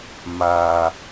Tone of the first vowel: low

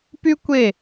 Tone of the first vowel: high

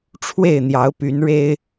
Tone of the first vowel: falling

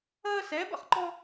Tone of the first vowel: high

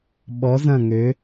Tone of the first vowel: rising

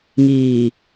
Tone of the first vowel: low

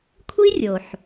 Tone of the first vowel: high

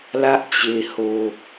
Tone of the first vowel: high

